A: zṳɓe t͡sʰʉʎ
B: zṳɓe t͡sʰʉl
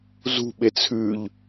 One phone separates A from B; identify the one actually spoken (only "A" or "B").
A